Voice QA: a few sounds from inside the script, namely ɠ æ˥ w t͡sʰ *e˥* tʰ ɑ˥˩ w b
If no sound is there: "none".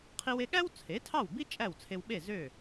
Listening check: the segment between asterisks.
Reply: e˩˥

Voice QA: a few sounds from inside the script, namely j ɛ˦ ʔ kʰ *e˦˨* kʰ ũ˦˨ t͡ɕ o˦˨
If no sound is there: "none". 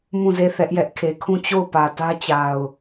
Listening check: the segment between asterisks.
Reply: e˨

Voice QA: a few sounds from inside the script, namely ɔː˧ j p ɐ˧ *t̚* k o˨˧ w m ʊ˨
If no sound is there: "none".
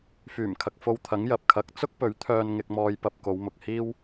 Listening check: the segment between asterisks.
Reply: p̚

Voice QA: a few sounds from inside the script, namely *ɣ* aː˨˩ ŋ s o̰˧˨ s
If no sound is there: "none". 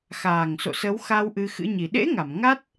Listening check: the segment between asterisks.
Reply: x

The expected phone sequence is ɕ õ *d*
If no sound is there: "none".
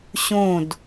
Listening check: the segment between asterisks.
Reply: d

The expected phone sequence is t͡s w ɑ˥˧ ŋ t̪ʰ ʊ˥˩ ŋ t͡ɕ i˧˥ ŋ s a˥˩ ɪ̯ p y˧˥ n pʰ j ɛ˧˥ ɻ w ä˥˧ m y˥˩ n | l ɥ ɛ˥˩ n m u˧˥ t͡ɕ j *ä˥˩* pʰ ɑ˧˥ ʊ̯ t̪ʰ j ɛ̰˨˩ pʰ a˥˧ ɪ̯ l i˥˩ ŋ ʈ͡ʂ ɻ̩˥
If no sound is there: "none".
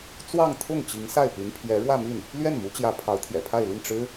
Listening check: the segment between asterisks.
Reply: ä˧˥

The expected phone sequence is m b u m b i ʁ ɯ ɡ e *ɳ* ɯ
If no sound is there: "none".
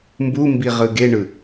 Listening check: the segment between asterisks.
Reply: ɳ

